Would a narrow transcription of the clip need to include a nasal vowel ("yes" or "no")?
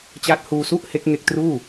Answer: no